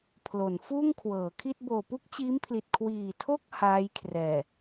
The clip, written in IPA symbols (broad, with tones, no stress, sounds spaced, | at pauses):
pʰ l o˩˦ n f uː˥˩ ŋ kʰ w ɤː˩˦ kʰ i˥˩ t̚ b oː˨˩ p u˥˩ k̚ t͡ɕ iː˦˥ m pʰ l i˨˩ t̚ kʰ w iː˨˩ tʰ o˥˩ k̚ h aː˦˥ j kʰ r ɛː˨˩